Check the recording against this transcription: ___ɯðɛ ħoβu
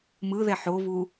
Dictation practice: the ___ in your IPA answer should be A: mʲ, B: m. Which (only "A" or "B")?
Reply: B